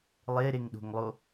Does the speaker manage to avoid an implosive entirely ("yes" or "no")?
no